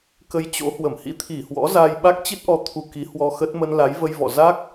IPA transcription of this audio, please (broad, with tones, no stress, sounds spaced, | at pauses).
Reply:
k ə˧ j t͡ɕ o̰˧˥ h w ə˧˩ m h ḭ˧˥ t̪ʰ i˧˩ h w ɔ̰˧˥ z aː˧ j ɓ a˦˥ k̚ t͡ɕ i˦˥ t̚ ʔ ɔ˨˦ t̪ʰ u˧ k i˨˦ h w ɔ˧ x ə˦˥ t̚ m ə˧ n l a˨˦ j v ə˧ j v ɔ̰˧˨ z a˦˥ k̚